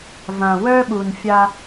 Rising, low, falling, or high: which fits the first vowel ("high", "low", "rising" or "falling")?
low